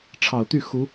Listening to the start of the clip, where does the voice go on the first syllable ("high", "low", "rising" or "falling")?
low